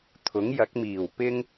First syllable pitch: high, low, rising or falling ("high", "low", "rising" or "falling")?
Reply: rising